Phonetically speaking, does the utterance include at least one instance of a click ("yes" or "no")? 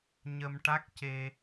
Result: no